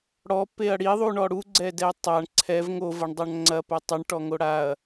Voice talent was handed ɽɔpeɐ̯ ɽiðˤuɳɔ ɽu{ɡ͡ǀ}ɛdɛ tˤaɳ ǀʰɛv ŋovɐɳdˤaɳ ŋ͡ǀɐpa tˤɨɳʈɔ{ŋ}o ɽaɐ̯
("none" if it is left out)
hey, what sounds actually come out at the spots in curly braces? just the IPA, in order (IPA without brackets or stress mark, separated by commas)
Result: ɡ͡ǀ, ŋ